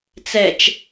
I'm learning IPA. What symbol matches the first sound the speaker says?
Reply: t͡s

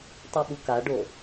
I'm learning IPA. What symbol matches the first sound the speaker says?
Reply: tˤ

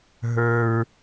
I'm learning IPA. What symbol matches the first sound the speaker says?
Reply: ɦ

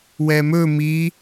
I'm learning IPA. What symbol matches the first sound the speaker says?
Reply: w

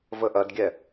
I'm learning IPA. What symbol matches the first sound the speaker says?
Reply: v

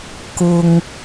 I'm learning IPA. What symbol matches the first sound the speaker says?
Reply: k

